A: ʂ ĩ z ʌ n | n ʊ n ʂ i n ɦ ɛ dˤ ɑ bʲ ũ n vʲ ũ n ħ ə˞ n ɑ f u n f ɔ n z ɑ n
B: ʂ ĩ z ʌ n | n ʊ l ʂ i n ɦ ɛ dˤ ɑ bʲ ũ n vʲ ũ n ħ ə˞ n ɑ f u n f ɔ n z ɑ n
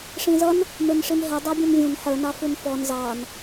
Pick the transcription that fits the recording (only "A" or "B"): A